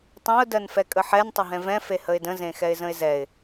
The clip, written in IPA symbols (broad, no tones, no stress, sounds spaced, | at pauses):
tˤ ẽ ʊ̯ d ɜ n f ɛ kʼ ə ħ ɛ n tˤ ə ɦ ɛ̃ v ɛ̃ f e h ə ɪ̯ d ə̃ z ẽ x ɛ ɪ̯ z ə̃ ɪ̯ z ɛ ɪ̯